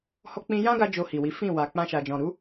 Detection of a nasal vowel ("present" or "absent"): present